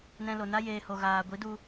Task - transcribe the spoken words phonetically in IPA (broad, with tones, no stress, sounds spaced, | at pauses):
n ɛ̃˧ l o˨ n a˦ j eː˧ h o˨ ɣ aː˨ ɡʷ i˨˦ d u˧